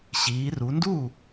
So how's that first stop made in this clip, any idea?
plain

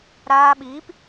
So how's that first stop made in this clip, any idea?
implosive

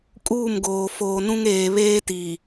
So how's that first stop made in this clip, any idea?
ejective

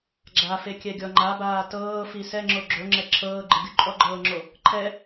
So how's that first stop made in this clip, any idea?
click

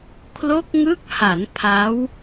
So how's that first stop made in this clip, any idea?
aspirated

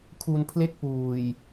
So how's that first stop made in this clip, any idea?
aspirated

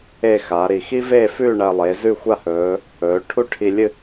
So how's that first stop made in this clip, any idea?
aspirated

